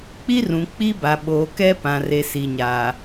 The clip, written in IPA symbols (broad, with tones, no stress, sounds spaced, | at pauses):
k͡p i˦ r ũ˨ k͡p i˦ b a˨ ɓ oː˨ k ɛ˦ p ã˨ r e˨ s i˨ ɲ aː˨